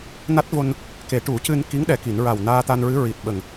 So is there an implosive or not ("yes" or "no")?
yes